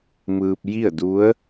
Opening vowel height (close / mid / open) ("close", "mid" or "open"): close